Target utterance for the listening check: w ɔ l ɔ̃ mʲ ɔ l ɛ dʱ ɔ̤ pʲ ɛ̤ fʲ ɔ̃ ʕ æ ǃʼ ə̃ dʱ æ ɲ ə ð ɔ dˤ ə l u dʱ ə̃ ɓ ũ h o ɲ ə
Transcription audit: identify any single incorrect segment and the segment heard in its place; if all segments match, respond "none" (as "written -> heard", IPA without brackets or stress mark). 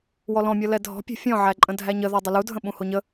none